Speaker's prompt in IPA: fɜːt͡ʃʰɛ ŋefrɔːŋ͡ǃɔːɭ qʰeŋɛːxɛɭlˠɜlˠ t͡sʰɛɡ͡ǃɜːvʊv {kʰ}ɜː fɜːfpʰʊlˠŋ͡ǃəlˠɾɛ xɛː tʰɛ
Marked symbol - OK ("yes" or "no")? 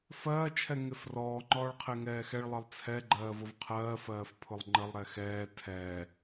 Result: no